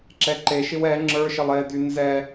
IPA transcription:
ǁ ɛ ǃ e ʃ ɪ w ɛ ŋ͡ǁ ə˞ ʃ ɪ lˠ e d y n z ɛ

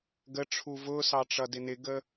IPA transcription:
ɡ ə ʈ͡ʂʰ u v ʊ s ɑ ʈ͡ʂ ʌ d ɪ n ɪ ɡ ə

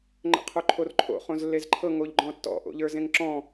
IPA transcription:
ŋ͡ǃ ə̰ qʰ o ǃʰ o r ǃʰ o̰ χ õ z lː e z ǃʰ ɤ ŋ o ʎ ɡ͡ǃ ɔ̃ tː ɔ̰ ʔ o̰ ʎ ə˞ z ẽ ŋ ǁ ɔ̃

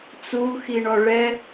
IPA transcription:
t͡s u x i ɳ ɔ ɭ ɛ

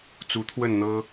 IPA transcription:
t͡s u˨˦ t̪ʰ w ə˥˨ n n̪ ɤ˦

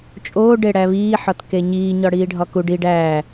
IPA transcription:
t͡ʃʼ oː ɖ e ɽ æ β iː ħ ɒ t k e ɲ iː ɲ ɒ ɽ iː ɖʱ ɒ k u ɖ i ɖ æː

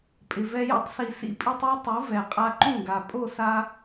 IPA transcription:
pʼ ɪ˨ v ɛ˧ j o̰˦ tˤ s i˨ s ḭ˧ pʼ i˧ tˤ o˦ tˤ u˨˦ v ɛ˨ qʼ a˧ ǃ ũ˦˨ ɡ a˨ pʼ o˦˨ s a˧

